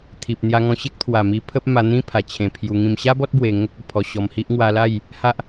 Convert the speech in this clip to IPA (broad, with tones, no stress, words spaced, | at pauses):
t̪ʰi˨p̚ n̪ja˧ŋɔ̃˧ɕe˦k̚ t̪ʰwa˨˩ mi˧ pʰə˦p̚ ma˧n̪ĩ˦ pʰa˨˩t͡ɕʰẽ˨˩pʰju˧ŋĩ˧m ɕa˦bɔ˦t̚ bwe˧ŋə˦k̚ə˨˩ pʰɔ˧ɕɔ˧mhi˦ʔ ŋwa˧la˥˧j | ha˦ʔ